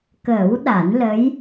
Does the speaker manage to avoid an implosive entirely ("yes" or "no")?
no